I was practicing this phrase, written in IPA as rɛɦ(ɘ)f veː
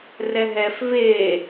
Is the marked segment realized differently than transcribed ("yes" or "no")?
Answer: yes